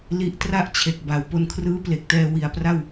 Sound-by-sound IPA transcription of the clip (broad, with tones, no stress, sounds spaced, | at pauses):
l i˦˥ ʔ t r a˥˩ ʔ t͡ɕʰ e˨˩ k̚ b a˩˦ w p o˧ n kʰ r ɯː˦˥ p l e˨˩ k̚ t ɛː˧ w i˨˩ a̯ p r a˥˩ w